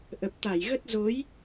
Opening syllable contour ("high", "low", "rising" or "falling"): low